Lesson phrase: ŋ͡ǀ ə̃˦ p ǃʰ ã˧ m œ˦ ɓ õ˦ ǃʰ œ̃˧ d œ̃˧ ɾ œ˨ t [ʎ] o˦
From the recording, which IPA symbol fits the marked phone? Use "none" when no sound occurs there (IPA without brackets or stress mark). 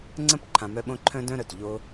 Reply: ʎ